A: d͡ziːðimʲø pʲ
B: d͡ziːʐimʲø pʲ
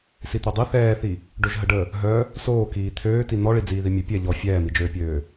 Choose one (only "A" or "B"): A